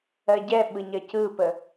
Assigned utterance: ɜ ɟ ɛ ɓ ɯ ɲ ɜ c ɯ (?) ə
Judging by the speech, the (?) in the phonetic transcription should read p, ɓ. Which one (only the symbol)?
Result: p